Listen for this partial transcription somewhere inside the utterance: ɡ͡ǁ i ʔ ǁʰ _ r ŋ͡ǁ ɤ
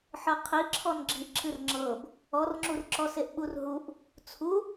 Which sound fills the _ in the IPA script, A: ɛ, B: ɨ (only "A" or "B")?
B